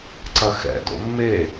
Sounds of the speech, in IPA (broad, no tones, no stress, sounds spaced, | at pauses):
ǀ ɐ x ɛ̰ d o̰ mː e